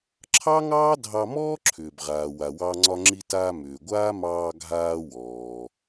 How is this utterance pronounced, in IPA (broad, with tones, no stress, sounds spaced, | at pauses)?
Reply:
ǁʰ ɑ˥ ŋ ɑː˥ dʱ ɑ˧ m ɔː˥ ǁʰ ʏː˩ b ʁ aː˩ w a˩ w ɑ˧ ŋ͡ǀ ɒ˧ ŋ͡ǁ i˧ t aː˧ m ʏː˩ ɡʷ aː˥ m ɑː˧ ɡʱ aː˧ w ɔː˩